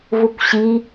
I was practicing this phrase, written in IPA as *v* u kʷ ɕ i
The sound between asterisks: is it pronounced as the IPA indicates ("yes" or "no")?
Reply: yes